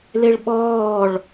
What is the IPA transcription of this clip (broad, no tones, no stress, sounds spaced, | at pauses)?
l e ɭ ɓ ɔː ɭ